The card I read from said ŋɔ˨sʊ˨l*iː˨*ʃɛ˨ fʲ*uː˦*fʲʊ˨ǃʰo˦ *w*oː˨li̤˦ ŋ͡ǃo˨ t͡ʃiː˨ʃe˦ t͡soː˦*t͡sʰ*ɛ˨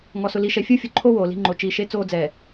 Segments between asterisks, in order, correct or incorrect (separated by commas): incorrect, incorrect, correct, incorrect